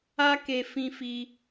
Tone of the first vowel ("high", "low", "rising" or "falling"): high